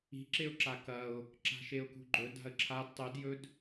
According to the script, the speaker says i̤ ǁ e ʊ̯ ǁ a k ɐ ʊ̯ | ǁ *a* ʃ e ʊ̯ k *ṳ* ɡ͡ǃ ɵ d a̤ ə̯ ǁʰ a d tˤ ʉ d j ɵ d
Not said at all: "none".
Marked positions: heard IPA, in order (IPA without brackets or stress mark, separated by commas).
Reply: a̤, ṳ